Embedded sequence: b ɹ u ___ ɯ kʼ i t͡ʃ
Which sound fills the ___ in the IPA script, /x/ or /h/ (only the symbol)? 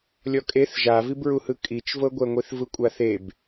h